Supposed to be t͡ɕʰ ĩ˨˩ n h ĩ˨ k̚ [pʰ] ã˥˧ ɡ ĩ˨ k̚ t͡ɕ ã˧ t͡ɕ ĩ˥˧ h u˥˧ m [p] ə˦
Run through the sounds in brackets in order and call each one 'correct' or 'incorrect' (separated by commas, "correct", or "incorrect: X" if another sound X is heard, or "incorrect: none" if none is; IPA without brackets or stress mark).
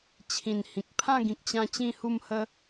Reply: correct, incorrect: h